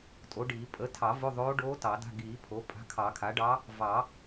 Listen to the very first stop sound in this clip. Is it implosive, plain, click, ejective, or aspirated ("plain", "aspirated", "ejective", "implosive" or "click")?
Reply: ejective